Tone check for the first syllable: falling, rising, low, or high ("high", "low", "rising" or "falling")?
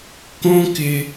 high